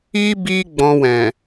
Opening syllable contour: high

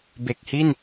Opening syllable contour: low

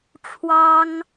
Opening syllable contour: high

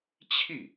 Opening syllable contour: falling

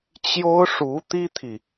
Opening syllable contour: high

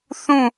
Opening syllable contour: falling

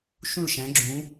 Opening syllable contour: falling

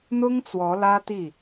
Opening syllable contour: high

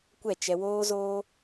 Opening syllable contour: falling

